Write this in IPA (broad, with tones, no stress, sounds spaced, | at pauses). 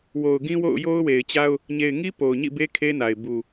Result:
w o˨ ʊ̯ ɡ ĩ˦ w o̰˦˨ ʊ̯ j o˦ ʊ̯ w e˨ ɪ̯ t͡ɕ a˦ ʊ̯ | ɲ e˨ ɪ̯ ŋ i˦ p o˨ ʊ̯ ɲ ḭ˦˨ b e˦ kʰ e˦ n a˨ ɪ̯ b u˨